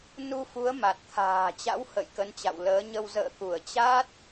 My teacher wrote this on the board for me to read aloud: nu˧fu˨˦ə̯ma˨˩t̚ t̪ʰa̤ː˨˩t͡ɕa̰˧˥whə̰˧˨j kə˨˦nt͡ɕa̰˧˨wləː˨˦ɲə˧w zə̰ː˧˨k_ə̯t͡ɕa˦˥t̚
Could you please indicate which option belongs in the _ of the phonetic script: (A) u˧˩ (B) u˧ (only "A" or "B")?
A